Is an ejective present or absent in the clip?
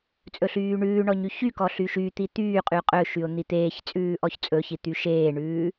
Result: present